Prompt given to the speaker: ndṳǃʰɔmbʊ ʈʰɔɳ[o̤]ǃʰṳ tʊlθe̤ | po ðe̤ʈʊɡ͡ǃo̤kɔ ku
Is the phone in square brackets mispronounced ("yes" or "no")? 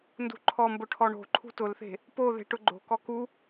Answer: no